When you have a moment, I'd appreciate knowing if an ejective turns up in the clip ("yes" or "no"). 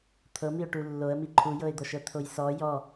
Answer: no